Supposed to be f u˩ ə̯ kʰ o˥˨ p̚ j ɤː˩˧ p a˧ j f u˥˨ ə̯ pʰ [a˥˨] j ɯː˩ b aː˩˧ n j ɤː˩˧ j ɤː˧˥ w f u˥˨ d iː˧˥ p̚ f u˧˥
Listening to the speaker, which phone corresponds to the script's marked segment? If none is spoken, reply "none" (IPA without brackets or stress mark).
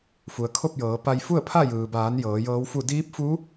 a˥˨